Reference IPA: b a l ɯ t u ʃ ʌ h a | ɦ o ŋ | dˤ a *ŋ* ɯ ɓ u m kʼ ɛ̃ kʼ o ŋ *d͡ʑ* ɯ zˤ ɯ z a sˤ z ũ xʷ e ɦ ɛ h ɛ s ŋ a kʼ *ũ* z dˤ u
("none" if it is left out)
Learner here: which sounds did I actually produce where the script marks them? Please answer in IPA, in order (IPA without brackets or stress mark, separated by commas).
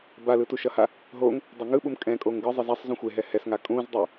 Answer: ŋ, ɡ, ũ